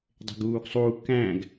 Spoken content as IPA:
dˤ e̤ ɡ uː ɡ sˤ u k æ̃ ɡ

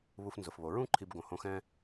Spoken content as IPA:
β u˧ f n z ʊ˩ f β o˩ ɹ ũ˥ ǃʰ i˧ b ɡ õ˩ h õ˧ x ɛ̃˥

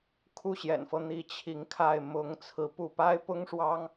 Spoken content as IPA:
kʰ u˥˩ ɕ j ɛ̰˨˩ n f ɤ˦ n̪ i˧˥ t͡ɕʰ i˧˥ ŋ kʰ a˥˩ ɪ̯ m ʊ˧˥ ŋ t͡sʰ ɹ̩˧˥ p u˥˩ p a˥ ɪ̯ p ʊ˥ ŋ ʂ w ɑ˥ ŋ

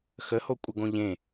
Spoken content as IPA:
x ə h o kʷʼ ə ɡ õ ʎ ẽ

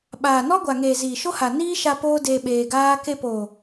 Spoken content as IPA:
ɓ aː˨ n ɔ˦ ɡʷ a˨ ŋ eː˨ z iː˨ ʃ o˦ h a˨ n iː˦ ʃ a˧ p oː˦ d eː˧ ɓ eː˧ ɡ aː˦ k e˧ p o˨

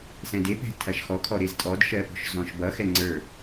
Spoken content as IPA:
s ɛ̃ d e p ɛ̤ tʰ ɐ ʃ x ɔ kʰ ɔ ɾ e z tʼ ɔ d ʃ ɜ p ɔ̤ ʃ z ɔ̃ ʃ b ʌ x ɛ ŋ͡ǀ ə˞

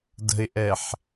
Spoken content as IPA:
d ə̤ ɪ̯ ʔ ɛ ħ

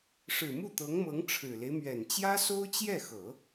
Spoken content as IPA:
ʂ ɻ̩˨˩ m u˥˩ t̪ ɤ˧˥ ŋ m ɤ˧˥ ŋ ʈ͡ʂʰ ɻ̩˨˩ l e˦ ɪ̯ m ɥ ɛ˨˩ n t͡ɕ j ä˥ s o˥ ʊ̯ t͡ɕ j ɛ˥˩ x ɤ˨˩˦

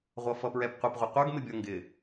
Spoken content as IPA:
ʁʷ ʌ f ʌ p ɹ ɛ p qʷ ɪ p ʁʷ ə qʷ ə˞ ɡ m ɪ bʲ ʌ ŋ ɡ ɪ

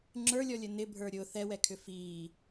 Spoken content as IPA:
ŋ͡ǁ ə˞ lʲ ɔ lʲ ə n ɪ bʱ ə˞ ɾʲ ʊ θ ɛ w ɛ kʰ ʏ f iː

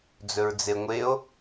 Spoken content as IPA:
d͡z ɵ ɹ d͡z e ŋʷ e o̯

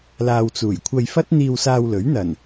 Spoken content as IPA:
l aː˨ w t͡s uː˨˩ j kʷʰ ɐ˧ j f ɐ˥ t̚ n̪ iː˧ w s aː˧ w l ɵ˨˥ ɥ n̪ ɐ˨˩ n

